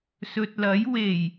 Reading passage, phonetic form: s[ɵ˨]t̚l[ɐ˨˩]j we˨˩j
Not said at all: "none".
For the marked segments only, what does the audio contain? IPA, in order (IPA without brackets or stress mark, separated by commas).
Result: ɵ˨, ɐ˨˥